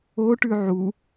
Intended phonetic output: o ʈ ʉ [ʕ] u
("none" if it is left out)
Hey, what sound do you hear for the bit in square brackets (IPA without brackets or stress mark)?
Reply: ʕ